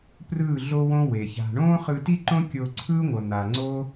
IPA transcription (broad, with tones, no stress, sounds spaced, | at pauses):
p r ɯː˦˨ ɮ o˦ w õ˦ w e˨ ç a̤˧ ɳ õː˦ χ ɯ˧ t i˦ ǃ õ˦ kʲ o˧ ǀʰ ɯː˦ ŋʷ ʌ˨ n̪ a˨ ŋ͡ǀ o˦